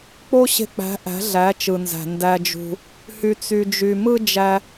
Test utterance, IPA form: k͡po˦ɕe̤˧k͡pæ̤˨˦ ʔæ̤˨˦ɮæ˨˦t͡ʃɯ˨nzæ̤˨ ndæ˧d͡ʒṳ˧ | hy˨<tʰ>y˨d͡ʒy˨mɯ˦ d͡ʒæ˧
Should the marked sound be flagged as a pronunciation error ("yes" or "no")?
yes